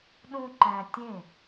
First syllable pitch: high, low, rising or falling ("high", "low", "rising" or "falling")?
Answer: high